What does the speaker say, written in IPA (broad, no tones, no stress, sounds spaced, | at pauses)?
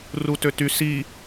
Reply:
r u t ø t y s i